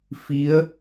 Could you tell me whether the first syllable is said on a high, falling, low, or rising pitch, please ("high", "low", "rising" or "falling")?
rising